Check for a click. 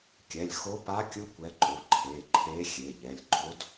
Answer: present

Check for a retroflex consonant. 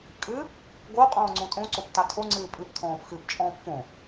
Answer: absent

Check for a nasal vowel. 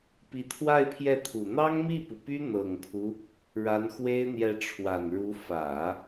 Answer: absent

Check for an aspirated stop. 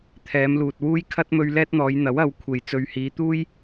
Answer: present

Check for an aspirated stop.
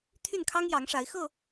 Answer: present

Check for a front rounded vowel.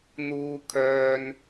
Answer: present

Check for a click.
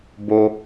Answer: absent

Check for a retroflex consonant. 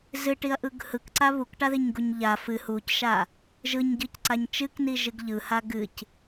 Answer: present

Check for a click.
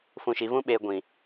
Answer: absent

